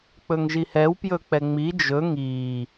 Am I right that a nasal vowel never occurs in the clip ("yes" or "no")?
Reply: yes